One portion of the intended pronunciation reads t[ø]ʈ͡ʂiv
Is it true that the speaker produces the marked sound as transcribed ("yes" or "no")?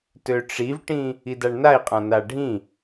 yes